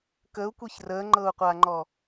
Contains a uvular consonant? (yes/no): yes